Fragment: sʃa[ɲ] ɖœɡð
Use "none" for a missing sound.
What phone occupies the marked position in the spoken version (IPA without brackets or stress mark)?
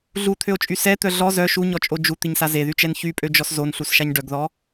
ɲ